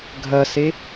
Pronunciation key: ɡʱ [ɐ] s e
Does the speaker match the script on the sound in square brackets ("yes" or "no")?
yes